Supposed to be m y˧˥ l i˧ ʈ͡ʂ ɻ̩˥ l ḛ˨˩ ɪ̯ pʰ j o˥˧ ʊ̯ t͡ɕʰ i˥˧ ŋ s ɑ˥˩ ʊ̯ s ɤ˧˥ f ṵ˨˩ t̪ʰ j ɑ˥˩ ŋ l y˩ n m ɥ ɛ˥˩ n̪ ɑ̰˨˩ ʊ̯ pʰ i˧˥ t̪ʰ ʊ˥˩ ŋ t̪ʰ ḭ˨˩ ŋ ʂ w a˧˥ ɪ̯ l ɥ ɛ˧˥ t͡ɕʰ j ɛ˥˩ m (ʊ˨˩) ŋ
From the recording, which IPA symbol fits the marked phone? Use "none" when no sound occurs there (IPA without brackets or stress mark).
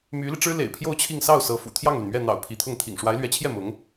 ʊ˧˥